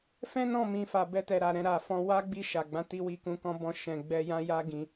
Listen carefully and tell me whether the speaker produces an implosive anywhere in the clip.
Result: no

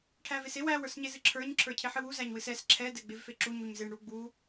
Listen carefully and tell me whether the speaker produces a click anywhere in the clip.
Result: yes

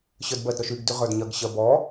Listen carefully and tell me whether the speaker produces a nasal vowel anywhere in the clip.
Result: no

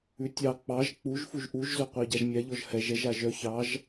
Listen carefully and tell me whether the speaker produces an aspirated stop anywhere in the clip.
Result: no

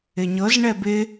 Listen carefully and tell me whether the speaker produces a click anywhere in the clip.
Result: no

